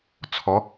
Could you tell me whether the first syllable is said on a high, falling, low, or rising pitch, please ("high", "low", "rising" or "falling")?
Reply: rising